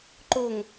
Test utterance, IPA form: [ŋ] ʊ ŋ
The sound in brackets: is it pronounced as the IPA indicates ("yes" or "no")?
no